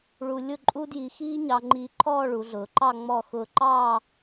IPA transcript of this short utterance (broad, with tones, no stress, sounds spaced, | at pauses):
ɭ u˧ lʲ ʊ˥˧ ǃʼ u˥ d j i˧ x iː˥ ɲ ɑ˧ ŋ͡ǃ iː˧ ǃʰ ɔː˥˧ ɭ u˩˧ ɮ ʊː˩˧ ǃ ɑ˥˧ ŋ͡m ɔ˧˩ x ʊː˧ ǃ ɑː˥˧